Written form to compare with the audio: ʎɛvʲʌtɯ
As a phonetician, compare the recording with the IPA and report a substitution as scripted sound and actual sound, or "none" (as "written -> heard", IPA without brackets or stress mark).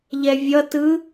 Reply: none